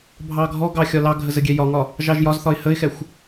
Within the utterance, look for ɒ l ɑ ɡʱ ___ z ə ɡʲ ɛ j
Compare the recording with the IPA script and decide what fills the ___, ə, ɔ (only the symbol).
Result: ə